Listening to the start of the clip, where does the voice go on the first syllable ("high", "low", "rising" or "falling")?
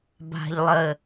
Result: low